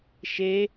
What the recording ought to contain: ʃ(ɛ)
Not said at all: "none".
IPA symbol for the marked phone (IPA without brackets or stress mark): e